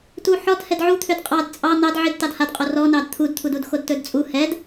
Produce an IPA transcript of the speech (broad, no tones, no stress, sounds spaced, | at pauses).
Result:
t u ħ ɔ d h ɛ d ʕ u t̪ʰ ø d qʼ ɑ d t͡sʼ ɑ n̪ ɑ d ʕ i d t ɑ d h a d qʼ o r ɔ n ɑ d t̪ʰ u d t̪ʰ u d u d x o d t ɵ d t͡sʼ u h ɛ d